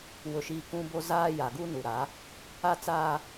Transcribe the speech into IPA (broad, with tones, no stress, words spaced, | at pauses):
wʊ˨ʃiː˨ kũ˦bo˦ zaː˦ ja˨ɡu˦nu˨ɾa˨˦ | a˦t͡saː˦